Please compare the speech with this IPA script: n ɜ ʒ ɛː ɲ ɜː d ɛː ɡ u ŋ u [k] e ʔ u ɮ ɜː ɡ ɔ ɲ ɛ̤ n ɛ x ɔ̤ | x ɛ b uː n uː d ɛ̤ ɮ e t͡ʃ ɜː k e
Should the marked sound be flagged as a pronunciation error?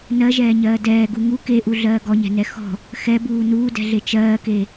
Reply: no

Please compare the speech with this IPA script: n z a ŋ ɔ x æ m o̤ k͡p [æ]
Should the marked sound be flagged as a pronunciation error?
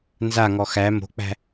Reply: yes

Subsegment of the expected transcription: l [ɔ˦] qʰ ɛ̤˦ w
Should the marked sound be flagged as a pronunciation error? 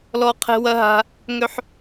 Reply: no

